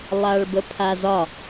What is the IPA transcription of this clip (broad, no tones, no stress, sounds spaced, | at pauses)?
lˠ a ɭ b ə pʰ a z ɒ